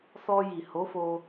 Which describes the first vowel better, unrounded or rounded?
rounded